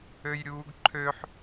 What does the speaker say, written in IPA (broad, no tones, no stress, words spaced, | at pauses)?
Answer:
øjɾʲuːɡǃʰøħ